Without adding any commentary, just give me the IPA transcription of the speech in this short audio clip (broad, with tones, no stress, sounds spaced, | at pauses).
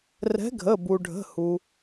r ɛ̤˨˥ ɡʱ ə˩˧˩ b u˩ ɖʱ ə̤˩˧˩ h u˩